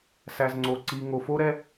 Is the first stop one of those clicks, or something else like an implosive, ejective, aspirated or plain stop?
click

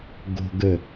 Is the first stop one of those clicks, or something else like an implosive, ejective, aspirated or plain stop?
plain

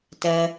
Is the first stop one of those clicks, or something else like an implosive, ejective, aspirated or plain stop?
plain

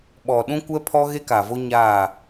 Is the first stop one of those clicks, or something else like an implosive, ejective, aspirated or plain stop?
implosive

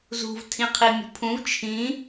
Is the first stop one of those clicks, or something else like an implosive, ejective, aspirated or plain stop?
aspirated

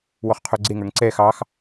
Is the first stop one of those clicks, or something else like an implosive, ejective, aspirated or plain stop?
aspirated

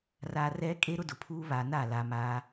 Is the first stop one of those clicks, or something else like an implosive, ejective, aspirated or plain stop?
ejective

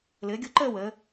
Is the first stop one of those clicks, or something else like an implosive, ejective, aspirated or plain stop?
plain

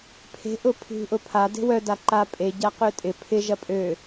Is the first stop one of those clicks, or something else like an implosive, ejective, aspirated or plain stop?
aspirated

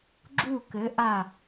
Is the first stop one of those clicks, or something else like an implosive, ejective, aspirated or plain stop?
click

